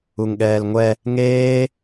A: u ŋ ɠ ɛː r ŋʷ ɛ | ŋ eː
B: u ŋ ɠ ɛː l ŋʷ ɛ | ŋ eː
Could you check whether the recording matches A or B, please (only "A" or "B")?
B